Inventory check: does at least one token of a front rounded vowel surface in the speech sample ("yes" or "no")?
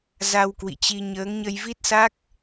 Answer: no